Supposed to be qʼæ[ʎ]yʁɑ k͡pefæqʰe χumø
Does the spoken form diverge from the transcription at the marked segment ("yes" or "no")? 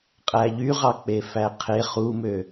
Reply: no